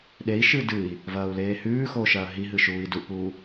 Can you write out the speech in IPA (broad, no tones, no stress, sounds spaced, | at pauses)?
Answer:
ɗ e i̯ ʃ ɨː d ɨ i̯ | v ɐː u̯ l eː h ʉː x oː ʃ ɐː ɦ i ɦ ɨ ʃ uː i̯ d u ʔ p uː